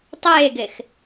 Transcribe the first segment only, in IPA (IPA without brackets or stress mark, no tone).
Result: tˤ